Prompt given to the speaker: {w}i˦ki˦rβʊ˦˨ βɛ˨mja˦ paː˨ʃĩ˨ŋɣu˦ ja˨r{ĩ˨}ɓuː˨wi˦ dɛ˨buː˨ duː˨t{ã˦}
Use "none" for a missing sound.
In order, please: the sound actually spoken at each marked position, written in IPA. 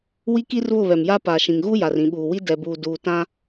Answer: w, ĩ˨, ã˦

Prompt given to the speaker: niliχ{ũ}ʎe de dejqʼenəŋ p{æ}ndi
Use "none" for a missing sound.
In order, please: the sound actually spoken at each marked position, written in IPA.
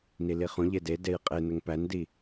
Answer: ũ, æ

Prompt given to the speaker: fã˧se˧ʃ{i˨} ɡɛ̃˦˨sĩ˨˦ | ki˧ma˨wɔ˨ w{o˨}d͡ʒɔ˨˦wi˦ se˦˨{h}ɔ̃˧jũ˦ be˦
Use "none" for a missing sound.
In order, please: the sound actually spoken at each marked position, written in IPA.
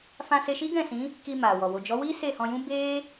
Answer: i˦, o˨, h

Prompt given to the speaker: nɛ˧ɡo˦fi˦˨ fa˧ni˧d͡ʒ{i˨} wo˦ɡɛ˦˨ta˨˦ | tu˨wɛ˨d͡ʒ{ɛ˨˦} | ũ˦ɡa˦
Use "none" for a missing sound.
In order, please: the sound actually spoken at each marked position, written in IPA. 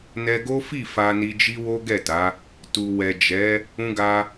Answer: i˦, ɛ˨˦

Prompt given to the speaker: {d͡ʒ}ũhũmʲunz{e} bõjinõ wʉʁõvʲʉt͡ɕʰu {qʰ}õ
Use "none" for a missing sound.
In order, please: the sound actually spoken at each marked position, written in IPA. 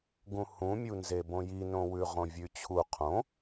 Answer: ɡ, e, qʰ

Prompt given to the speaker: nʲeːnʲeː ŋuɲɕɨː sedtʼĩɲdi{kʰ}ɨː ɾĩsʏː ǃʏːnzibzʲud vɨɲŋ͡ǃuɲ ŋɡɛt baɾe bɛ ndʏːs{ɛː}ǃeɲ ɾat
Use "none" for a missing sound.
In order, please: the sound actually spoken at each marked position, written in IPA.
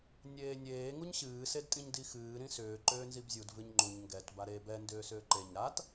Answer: x, ʏː

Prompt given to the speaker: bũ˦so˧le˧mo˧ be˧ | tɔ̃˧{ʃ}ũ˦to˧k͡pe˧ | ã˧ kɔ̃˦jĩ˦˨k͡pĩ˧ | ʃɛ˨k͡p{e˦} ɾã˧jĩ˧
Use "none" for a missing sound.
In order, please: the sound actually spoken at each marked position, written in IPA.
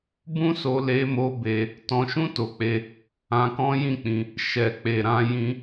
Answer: ʃ, e˨

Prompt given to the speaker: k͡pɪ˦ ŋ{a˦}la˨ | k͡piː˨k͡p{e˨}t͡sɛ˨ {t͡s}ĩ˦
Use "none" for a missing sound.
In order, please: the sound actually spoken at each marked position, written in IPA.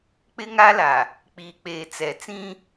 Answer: a˦, eː˨, t͡s

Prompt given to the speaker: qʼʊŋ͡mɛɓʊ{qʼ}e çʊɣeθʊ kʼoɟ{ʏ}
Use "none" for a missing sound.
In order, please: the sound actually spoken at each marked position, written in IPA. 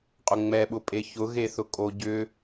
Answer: pʼ, ʏ

